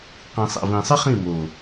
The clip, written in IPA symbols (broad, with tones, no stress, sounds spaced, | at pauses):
q ĩ˨ sˤ ɛ̰˨ v ĩ˨ sˤ ɨ˦ χ ĩ˦˨ m o˨